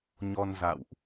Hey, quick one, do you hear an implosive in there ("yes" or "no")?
no